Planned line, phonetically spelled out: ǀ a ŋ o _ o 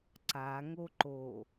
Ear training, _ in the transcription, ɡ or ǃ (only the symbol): ǃ